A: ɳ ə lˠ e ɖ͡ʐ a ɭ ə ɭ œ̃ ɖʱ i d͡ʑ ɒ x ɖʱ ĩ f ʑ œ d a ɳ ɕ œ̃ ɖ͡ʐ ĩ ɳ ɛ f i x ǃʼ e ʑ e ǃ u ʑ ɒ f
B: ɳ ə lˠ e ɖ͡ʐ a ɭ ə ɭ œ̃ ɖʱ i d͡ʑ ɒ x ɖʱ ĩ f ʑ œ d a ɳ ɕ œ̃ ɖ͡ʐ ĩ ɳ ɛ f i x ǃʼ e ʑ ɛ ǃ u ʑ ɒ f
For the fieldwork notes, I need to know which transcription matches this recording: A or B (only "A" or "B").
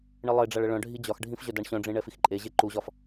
A